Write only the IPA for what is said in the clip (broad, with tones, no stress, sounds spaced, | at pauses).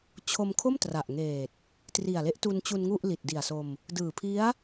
t͡ɕʰ o˧ m kʰ o˥˩ m t r a˨˩ ʔ ŋ eː˨˩ t̚ | t r i˨˩ a̯ l e˦˥ ʔ t u˧ n t͡ɕ u˧ n ŋ u˥˩ ʔ l i˨˩ t̚ d i˨˩ a̯ s o˧ m | d ɯː˨˩ pʰ i˦˥ a̯